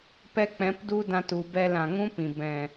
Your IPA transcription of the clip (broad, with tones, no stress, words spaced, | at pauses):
pɛ˦k͡pɛ̃˨˦pdu˦dã˧t u˨bɛ˧l ã˨ŋũ˦pĩ˨ bɛ̃˨